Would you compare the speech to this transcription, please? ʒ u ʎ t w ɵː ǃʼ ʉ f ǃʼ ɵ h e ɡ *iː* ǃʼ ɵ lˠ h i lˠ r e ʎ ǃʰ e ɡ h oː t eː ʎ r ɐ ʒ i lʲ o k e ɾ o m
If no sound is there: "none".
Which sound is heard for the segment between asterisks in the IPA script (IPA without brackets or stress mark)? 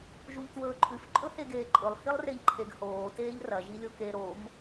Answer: eː